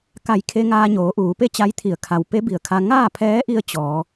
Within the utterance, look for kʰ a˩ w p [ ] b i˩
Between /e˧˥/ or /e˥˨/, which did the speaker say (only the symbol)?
e˧˥